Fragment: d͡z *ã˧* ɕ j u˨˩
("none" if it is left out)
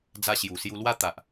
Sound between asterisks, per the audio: a˧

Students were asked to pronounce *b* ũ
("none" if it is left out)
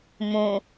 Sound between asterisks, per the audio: m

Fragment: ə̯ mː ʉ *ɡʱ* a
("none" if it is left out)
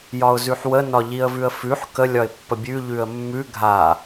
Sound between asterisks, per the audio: ɡʱ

